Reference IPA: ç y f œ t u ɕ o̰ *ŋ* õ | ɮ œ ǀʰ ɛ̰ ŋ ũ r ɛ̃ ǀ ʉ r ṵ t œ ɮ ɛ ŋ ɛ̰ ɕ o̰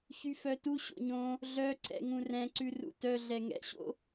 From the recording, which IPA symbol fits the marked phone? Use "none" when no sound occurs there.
ɲ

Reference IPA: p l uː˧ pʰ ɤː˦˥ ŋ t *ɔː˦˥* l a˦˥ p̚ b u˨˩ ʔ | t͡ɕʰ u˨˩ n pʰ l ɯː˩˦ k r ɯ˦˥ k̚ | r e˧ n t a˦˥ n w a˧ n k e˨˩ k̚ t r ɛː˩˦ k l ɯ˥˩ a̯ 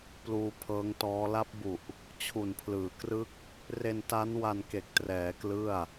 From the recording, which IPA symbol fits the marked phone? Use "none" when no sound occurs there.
ɔː˦˥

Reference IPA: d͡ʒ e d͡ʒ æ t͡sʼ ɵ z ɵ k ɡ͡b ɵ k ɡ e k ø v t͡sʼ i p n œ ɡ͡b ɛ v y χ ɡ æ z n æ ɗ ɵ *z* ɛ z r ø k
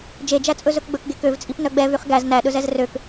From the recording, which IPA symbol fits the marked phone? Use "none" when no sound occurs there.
z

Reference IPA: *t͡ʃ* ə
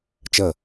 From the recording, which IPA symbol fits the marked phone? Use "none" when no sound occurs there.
t͡ʃ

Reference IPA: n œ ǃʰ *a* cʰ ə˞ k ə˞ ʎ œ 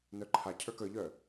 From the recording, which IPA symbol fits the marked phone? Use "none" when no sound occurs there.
a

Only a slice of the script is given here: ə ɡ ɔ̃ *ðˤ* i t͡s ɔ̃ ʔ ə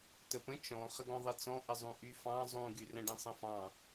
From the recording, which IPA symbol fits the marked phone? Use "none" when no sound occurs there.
ðˤ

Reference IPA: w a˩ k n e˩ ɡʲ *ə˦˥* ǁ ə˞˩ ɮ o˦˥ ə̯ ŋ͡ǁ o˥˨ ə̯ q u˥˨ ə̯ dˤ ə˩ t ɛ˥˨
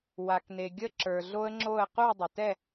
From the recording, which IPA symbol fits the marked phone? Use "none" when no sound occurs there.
ə˦˥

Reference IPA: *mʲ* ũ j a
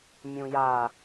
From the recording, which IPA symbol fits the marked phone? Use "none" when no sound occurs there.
mʲ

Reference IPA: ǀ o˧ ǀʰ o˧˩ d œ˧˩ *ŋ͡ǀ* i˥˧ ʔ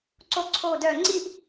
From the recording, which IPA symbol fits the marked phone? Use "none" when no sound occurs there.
ŋ͡ǀ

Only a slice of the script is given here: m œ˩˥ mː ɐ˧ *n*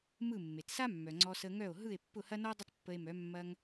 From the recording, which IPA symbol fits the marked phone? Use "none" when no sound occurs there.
ŋ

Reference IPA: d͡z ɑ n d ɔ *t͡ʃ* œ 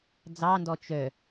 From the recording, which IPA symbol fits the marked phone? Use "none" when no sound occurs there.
t͡ʃ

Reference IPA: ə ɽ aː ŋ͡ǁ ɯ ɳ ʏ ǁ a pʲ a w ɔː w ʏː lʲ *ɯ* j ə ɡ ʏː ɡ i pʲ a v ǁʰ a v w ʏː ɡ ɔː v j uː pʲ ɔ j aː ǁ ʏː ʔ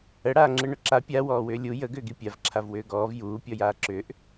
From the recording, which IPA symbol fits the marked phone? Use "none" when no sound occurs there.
u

